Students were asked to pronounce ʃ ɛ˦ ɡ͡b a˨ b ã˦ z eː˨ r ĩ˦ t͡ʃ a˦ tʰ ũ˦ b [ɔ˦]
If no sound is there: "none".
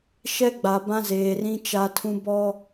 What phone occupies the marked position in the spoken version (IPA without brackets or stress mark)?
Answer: ɔ˦